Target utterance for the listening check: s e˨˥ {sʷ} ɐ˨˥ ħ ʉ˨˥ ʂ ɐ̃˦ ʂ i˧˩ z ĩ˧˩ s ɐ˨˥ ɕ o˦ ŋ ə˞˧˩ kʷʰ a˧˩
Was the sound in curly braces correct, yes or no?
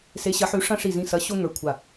no